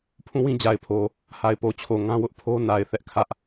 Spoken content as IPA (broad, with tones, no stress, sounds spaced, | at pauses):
pʰ ũ˦˨ w ĩ˦ d͡ʑ a˨ ɪ̯ pʰ o˨ | h a˨ ɪ̯ p o˨ t͡ɕʰ o˨ ŋ ã˦ w ʊ˦ ʔ pʰ o˦ n a˨ ɪ̯ θ ɛ˦ ʔ kʰ ä˦ ʔ